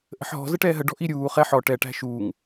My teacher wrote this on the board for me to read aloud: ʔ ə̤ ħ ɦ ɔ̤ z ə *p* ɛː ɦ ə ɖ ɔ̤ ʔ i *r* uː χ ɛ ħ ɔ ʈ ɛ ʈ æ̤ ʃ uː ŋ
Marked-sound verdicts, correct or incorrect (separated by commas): incorrect, incorrect